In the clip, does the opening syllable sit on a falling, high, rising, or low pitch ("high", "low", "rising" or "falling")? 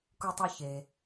low